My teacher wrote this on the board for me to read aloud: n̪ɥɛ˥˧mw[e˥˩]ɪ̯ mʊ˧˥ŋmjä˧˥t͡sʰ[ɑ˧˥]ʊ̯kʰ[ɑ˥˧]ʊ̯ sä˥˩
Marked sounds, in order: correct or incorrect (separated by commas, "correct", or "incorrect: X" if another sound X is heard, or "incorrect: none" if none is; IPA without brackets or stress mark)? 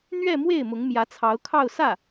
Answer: correct, correct, correct